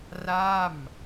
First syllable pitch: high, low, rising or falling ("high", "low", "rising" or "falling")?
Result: falling